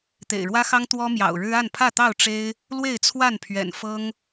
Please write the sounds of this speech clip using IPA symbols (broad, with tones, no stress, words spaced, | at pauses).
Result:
t̪ḛ˨˩ɪ̯ɻwä˦xɑ˦ŋ t̪wɔ˦mjɑ̰˨˩ʊ̯ɻɻ̩˦ a˥˨npʰä˥˨t̪ɑ˥˨ʊ̯ ʈ͡ʂe˦ɪ̯ | lwe˥˨ɪ̯t͡sʰwa˥˨npʰɥɛ̰˨˩n fɤ˦ŋ